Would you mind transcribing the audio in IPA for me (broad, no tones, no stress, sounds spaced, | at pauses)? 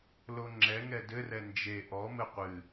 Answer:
l o ŋ͡ǁ ɛ ŋ ɛ d ɘ r ɛ n d͡ʒ e ʔ ɔ m ɘ qʷ ɨ